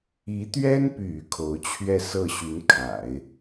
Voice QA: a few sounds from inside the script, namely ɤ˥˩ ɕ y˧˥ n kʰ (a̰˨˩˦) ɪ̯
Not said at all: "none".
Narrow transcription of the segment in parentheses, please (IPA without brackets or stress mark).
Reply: a̰˨˩˦